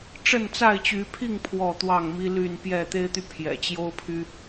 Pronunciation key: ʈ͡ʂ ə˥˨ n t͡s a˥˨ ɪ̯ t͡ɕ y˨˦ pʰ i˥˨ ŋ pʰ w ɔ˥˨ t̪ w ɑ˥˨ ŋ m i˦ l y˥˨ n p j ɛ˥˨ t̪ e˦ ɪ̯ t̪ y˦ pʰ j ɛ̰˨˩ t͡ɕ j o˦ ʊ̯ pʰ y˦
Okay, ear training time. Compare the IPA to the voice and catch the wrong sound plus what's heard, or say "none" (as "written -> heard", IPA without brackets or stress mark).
none